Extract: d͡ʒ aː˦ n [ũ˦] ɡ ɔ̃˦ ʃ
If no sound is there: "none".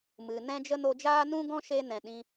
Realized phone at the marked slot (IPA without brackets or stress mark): ũ˦